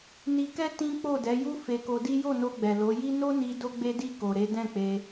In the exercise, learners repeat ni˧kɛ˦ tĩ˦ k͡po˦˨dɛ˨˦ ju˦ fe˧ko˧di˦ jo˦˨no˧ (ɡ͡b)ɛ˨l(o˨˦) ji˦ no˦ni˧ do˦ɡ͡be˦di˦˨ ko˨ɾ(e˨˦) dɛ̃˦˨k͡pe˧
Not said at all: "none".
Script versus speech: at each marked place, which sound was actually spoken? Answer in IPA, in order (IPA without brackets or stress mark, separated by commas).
ɡ͡b, o˨˦, e˨˦